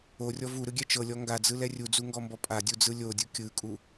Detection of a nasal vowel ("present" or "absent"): absent